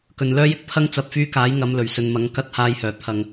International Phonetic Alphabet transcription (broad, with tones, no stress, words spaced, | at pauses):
kɵ˨nlœː˥jɪ˥k̚ pʰɐ˥ŋ t͡sɐ˨p̚fyː˧kaː˨˥j ŋɐ˨˧mlɵ˨˩ɥ sɵ˨nmɐ˨˥ŋ kɐ˨˥t̚haː˨jhœː˨˩ t̪ʰɐ˨ŋ